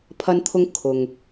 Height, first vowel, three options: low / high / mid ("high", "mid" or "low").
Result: low